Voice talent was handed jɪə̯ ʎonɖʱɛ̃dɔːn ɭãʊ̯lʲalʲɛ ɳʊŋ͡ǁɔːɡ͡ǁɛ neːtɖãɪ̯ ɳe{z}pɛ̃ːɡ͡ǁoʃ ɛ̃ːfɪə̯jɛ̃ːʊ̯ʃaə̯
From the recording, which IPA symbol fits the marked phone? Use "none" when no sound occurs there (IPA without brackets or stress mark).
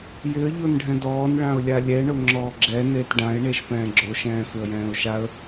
ʃ